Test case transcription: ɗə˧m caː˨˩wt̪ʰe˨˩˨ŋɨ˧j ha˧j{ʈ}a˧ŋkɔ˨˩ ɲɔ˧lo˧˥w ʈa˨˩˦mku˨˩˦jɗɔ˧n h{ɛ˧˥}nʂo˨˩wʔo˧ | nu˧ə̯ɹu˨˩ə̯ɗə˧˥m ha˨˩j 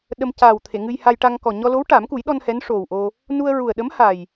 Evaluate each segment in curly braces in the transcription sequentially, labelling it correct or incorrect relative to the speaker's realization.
correct, correct

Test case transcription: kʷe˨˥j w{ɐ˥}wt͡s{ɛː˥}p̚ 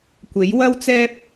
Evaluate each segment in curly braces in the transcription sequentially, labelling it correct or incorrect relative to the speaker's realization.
correct, correct

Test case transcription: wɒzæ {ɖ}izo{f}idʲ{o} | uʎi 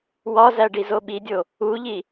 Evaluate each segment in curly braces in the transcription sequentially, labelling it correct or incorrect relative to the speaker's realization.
correct, incorrect: ɓ, correct

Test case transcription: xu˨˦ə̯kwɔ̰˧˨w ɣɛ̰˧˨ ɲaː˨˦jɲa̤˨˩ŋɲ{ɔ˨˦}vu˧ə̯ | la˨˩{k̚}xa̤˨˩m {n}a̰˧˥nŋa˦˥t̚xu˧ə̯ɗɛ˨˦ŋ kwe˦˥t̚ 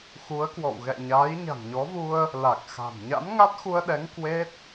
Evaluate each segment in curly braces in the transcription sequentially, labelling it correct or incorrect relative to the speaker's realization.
correct, correct, incorrect: ɲ

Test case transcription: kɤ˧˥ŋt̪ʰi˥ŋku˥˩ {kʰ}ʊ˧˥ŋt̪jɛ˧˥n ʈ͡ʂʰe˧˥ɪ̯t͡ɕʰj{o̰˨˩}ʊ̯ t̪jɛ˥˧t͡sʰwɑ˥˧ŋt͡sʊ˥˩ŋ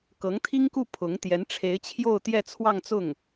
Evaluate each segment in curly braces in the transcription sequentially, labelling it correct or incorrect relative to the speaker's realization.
incorrect: pʰ, incorrect: o˥˧

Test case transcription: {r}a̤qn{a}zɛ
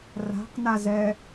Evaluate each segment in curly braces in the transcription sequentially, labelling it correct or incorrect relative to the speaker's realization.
correct, correct

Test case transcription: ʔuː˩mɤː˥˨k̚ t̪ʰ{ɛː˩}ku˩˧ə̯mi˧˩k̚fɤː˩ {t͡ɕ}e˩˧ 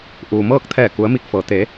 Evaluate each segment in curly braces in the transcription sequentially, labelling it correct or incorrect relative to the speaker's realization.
incorrect: ɛː˧˩, incorrect: t̪

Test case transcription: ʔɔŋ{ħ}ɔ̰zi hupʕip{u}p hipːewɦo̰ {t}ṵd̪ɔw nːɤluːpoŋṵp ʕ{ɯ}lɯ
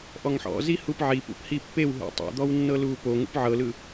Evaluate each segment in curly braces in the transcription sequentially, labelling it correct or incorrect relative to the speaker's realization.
correct, incorrect: ṵ, incorrect: tˤ, incorrect: ɤ

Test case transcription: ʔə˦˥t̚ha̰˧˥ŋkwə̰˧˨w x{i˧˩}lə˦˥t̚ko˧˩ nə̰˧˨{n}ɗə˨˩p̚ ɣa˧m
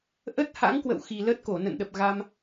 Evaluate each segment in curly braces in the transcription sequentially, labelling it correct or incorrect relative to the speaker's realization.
incorrect: i˨˩, correct

